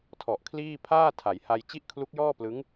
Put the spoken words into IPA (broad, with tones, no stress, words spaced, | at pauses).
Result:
tʰɔ˨˩ʔkʰliː˥˩ pʰaː˥˩ tʰa˩˦jha˧j t͡ɕi˥˩ʔkʰlu˦˥k̚jɔː˥˩plɯ˦˥ŋ